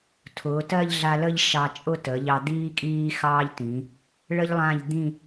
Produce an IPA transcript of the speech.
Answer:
tʰʊː˩˧tɜ˥˧ʎɮa˧lə˥˧ʎ ʃɑ˧t͡ʃʼʊ˥˧ tə˩˧ʎɑ˧ d̪iː˥kʼiː˥xɑː˥ʎtĩ˩˧ | ɭə˥ʎlˠã˥˧ʎ d̪ĩ˥˧

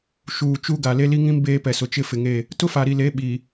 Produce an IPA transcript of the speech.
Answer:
ʃuː˨t͡ʃu˦ɡa˨ le˦li˦ŋĩ˦m beː˦pɛ˨sʊ˨ t͡ʃɪ˦fɪ˨ŋe˦˨ | tʊ˦fa˨ɾi˨le˨˦ ɓi˨

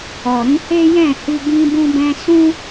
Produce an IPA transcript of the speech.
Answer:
ɔ˨ ɾĩ˧he˦jɛ̃˦˨hi˧ ɡĩ˧bũ˧bɛ̃˧ sũ˦

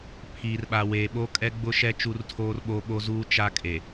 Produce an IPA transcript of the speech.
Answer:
pʰiː˨rɓa˨weː˨ ɓo˦kʼɛ˦ɡ͡bʊ˦ʃɛ˦ t͡ʃu˦rtʰoː˦rɓoː˦ɓo˦ zuː˦ t͡ʃa˦kʼe˨

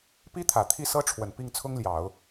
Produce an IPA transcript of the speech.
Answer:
pi˥t̪ʰä˨˩ t̪ʰi˥˩sɤ˥ʈ͡ʂʰwə˨˩n pi˥˩ŋt͡sʰʊ˥ŋljɑ˨˩˦ʊ̯

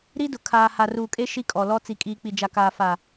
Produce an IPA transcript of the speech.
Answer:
ɾi˦dʊ˨ kʰaː˨ ha˨ruː˨kʼe˦ ʃi˦kʼɔ˨lɔ˦ t͡si˨kʼiː˨ k͡pi˨d͡ʒa˨kaː˨ fa˨

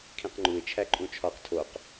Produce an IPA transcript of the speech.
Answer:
kʰĩqŋ͡ǃuɪ̯ t͡ʃʰæǃʼũt͡ʃʰɒq tʰoq

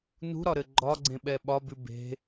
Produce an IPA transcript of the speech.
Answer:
nṳɾɒɾɘ ɡ͡ǃɒɡ͡ǀẽɓɛ ɓɒbʉ be̤

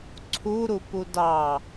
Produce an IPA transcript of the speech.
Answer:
ǀʰuɾupu dɑ

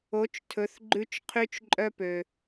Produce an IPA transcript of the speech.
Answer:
o˩˧t͡ʃtʰɵ˩˧θɡ͡ǃʉ˧t͡ʃ qʰy˧t͡ʃǃʼœ˧pø˩

